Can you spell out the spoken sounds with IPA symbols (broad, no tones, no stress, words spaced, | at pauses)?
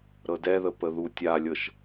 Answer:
ɾɤdɛðə pəðu tʲalʲɤʃ